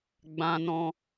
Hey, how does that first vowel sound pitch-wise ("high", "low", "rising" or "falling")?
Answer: high